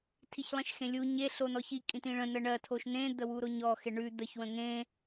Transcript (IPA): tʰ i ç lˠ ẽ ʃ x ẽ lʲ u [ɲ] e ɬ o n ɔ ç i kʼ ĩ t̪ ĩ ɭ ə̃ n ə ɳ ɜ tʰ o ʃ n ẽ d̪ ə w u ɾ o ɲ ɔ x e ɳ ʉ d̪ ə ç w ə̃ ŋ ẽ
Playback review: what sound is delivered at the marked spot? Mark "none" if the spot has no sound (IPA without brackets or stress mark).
ɲ